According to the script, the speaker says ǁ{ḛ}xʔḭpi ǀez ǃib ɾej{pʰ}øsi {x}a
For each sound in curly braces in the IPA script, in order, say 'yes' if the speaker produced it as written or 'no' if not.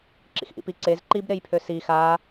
no, yes, yes

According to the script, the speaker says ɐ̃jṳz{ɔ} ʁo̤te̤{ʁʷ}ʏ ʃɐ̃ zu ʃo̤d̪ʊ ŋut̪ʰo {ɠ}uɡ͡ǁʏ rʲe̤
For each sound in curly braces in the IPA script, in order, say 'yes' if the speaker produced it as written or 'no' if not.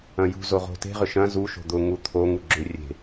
no, no, no

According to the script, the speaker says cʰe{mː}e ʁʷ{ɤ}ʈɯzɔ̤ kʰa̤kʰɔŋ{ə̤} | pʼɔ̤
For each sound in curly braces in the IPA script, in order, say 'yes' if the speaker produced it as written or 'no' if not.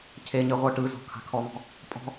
no, yes, no

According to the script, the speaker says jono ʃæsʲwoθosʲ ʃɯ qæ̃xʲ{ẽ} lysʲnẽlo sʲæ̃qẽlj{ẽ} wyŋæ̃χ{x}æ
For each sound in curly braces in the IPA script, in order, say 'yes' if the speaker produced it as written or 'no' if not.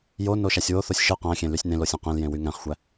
yes, yes, no

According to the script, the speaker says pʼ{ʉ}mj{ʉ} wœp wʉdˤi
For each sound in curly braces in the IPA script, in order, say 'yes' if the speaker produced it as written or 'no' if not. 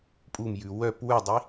no, yes

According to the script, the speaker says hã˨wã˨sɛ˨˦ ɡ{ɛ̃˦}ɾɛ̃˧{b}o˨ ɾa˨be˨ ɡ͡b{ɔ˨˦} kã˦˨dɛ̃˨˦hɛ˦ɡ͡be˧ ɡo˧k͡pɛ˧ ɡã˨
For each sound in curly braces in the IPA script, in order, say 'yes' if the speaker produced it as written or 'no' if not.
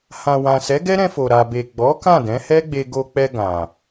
no, no, yes

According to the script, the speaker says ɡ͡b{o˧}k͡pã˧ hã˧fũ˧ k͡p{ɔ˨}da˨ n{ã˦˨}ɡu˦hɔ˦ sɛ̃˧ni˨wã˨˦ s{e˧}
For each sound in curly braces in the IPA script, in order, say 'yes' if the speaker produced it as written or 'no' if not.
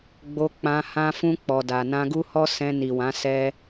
yes, yes, no, no

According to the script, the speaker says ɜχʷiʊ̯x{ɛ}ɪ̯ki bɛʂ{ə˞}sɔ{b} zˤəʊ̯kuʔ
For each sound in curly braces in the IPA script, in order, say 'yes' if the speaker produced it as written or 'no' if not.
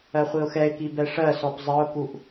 yes, no, no

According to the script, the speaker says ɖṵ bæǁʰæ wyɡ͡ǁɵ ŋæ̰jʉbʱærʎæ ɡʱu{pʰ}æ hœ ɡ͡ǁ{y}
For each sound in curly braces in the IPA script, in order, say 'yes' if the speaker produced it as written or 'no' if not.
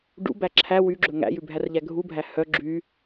no, yes

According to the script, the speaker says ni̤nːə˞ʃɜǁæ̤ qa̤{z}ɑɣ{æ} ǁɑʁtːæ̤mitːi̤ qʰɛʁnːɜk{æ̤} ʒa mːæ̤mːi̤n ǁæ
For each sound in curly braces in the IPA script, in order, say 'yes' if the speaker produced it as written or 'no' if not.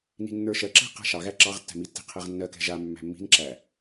no, yes, no

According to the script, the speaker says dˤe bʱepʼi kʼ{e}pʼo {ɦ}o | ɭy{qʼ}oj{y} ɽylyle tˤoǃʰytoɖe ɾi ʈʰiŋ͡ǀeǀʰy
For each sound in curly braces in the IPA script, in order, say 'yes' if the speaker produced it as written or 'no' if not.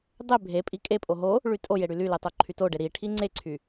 yes, yes, no, no

